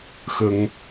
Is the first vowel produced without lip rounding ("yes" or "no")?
yes